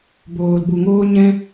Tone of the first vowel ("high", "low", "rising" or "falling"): low